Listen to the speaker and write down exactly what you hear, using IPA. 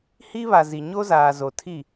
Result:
h iː˦ β a˨ z i˨ ɲ o˦ z aː˨ z o˨ tʰ i˦˨

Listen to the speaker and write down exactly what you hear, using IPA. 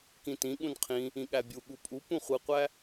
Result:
k ĩ t ĩ ɠ ũ n qʰ ĩ | ĩ ɠ æ bʲ u ɠ u pʼ u p ũ χʷ ɯ qʷ æ

